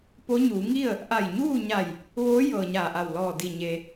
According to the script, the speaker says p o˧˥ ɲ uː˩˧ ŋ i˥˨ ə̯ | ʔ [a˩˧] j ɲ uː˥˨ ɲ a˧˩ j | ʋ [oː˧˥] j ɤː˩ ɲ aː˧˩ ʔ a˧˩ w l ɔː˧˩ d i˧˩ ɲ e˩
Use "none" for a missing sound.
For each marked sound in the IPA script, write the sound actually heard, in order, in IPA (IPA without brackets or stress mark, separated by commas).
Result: a˧˩, oː˧˥